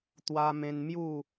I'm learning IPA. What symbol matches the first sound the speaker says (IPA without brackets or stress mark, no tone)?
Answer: t̪